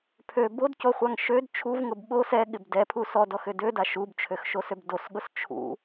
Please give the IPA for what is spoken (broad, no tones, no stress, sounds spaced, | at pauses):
pʰ ø b o d c o χʷ a ŋ ʃ ø d t͡ʃʰ u v ŋ ʊ b ɓ o s ɛ ɠ ɪ b d ɛ pʰ u s ɔ d ɔ x ʏ d ø d a ʃ u b t͡ʃʰ ø x ʃ o s ø b d o s ɠ ʊ s t͡ʃʰ ṵ